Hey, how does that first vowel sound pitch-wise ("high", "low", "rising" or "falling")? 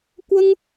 high